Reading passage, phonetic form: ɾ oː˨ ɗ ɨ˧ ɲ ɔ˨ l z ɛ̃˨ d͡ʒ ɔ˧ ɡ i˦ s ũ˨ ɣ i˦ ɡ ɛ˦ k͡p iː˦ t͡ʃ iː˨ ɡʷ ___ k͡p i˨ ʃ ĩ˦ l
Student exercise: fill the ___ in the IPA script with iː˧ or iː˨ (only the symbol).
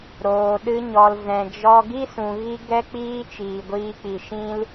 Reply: iː˧